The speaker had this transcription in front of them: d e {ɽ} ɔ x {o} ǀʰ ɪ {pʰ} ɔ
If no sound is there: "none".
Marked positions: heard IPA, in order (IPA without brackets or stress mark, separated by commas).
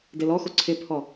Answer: l, o, pʰ